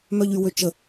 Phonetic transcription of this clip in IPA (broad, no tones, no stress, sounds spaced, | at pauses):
m œ ʎ y w ø t͡ʃ ə